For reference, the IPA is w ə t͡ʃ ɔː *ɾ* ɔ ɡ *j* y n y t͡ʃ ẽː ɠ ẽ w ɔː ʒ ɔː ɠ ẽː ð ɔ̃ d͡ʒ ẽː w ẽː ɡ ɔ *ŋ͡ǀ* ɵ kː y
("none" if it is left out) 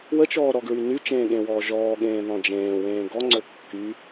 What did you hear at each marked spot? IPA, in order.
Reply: ɾ, ɹ, ŋ͡ǀ

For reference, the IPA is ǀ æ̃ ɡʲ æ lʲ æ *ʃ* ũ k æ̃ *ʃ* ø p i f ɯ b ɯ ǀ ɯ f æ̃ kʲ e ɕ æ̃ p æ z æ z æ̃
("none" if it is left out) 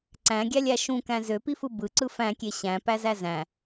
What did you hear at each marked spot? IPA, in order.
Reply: ʃ, z

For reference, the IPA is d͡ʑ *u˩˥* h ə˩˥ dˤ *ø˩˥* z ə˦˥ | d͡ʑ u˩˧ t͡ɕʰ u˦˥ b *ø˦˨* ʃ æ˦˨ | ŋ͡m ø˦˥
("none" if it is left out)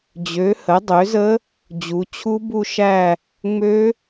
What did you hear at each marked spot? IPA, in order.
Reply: ø˩˥, ø˩˥, u˦˨

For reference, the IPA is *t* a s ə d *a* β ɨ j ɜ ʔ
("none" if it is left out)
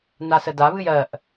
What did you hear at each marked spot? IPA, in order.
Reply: n, a

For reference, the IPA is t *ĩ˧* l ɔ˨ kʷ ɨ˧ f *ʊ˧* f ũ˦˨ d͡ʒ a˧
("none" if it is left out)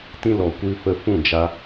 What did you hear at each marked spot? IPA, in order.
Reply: ĩ˧, ə˧

